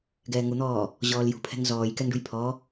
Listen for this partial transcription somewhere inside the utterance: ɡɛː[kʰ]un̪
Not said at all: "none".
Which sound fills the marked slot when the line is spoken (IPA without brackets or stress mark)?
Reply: ŋ